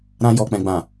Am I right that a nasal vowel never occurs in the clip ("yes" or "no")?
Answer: no